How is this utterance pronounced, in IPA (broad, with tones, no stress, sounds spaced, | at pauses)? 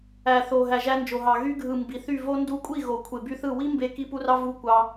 æ˨ θ o˨ ɦ æ˨ ʒ æ˧ n d͡ʒ o˨ ɦ ɑ˨ ɣ y˧ ɡʱ ɯ˨ m b i˨ θ y˦˨ v o˦ n d u˧ kʷʼ i˦˨ ɣ o˨ kʷʰ e˨ b y˧ θ ɯ˦˨ w i˦ m b e˧ k i˦ p u˦ r ɑ˦ v u˦ kʷ ɑ˧